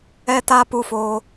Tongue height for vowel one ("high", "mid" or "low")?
mid